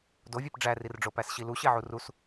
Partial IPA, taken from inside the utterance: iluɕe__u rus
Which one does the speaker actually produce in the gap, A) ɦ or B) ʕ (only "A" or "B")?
B